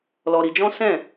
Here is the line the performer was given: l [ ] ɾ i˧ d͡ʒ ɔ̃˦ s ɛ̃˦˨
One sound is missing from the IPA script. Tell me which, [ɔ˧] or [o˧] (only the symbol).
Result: ɔ˧